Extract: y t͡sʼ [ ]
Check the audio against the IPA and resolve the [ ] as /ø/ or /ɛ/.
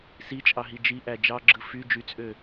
ø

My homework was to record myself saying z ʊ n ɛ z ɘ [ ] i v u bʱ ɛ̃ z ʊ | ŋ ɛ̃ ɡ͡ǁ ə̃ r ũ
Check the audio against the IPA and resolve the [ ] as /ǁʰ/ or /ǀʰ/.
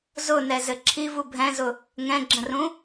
ǁʰ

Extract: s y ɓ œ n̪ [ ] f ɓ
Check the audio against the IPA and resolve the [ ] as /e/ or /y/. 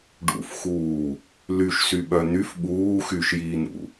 y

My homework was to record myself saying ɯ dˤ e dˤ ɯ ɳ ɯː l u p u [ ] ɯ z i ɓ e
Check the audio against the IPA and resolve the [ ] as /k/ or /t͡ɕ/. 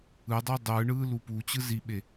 t͡ɕ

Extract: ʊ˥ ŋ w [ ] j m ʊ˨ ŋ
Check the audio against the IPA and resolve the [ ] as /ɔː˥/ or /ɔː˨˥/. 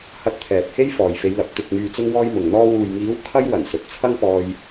ɔː˥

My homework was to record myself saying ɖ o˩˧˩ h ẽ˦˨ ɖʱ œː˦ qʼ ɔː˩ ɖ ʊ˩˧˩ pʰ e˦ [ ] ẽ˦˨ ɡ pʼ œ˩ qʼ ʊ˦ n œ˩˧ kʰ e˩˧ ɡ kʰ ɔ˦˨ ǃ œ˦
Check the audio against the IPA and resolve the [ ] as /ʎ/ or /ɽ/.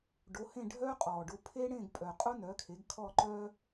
ɽ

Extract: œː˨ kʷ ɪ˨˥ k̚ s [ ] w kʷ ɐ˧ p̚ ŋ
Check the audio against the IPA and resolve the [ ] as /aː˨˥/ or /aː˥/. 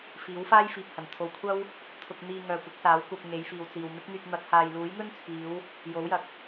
aː˨˥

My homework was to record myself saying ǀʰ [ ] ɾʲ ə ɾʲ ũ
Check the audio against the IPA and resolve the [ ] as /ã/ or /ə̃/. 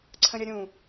ə̃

